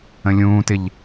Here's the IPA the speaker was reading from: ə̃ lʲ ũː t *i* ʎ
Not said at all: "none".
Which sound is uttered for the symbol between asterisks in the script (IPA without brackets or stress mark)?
ɪ